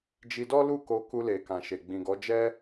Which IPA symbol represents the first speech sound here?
d͡ʒ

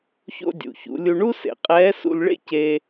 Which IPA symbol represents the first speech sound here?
ç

